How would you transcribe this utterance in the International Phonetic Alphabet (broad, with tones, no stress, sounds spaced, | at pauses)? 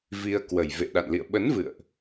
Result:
v i˧ ə̯ k w ə˨˩ j v ḛ˧˨ ɗ a̰˧˨ n l ḭ˧˨ ə̯ ɓ ə˨˦ n v ɨ̰˧˨ ə̯ ʔ